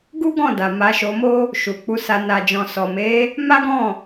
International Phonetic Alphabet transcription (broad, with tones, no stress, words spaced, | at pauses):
ɡu˦ɡɔ̃˦˨da˨ ma˧ʃo˧mo˦ | ʃu˨k͡pu˧sa˧ na˨d͡ʒɔ̃˨ sɔ˨me˨˦ | ma˦ɡɔ̃˦˨